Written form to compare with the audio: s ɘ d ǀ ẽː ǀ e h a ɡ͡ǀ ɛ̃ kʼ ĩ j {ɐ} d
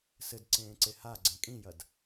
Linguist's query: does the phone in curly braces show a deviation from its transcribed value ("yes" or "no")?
no